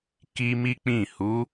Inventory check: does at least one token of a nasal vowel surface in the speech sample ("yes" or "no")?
yes